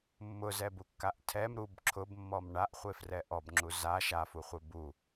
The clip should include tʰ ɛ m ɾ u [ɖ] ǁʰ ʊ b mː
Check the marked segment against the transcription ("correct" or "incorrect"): incorrect